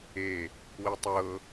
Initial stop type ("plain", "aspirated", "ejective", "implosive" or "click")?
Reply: plain